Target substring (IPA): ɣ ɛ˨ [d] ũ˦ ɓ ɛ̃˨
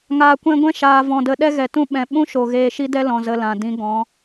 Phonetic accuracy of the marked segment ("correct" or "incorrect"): incorrect